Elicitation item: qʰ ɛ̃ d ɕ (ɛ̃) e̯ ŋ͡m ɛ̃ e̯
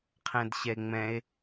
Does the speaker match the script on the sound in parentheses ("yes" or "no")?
no